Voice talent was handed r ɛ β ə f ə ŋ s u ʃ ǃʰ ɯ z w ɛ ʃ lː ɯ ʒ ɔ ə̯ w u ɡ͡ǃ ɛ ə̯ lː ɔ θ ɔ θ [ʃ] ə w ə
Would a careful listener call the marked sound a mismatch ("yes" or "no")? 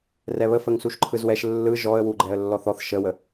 no